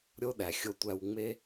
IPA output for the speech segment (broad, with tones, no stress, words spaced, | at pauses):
ɾʲo˦ɗæ˨xʲo˦tʷæ˦w ŋ͡me˦